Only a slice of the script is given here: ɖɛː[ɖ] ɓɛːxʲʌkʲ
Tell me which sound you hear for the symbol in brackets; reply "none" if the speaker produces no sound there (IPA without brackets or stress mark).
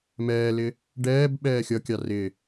b